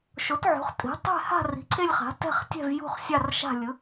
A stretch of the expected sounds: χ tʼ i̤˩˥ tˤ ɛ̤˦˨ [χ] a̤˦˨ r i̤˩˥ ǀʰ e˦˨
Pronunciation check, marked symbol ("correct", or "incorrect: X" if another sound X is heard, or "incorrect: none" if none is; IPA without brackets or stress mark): incorrect: h